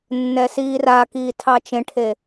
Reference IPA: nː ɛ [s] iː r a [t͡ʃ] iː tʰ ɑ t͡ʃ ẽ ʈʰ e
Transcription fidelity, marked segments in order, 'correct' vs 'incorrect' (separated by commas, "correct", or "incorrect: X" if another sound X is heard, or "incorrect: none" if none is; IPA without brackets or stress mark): correct, incorrect: k